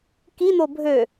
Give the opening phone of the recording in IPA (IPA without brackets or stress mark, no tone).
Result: k